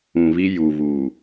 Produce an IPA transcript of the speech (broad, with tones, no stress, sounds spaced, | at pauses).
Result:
ũ˨ β i˦ j u˨ β uː˨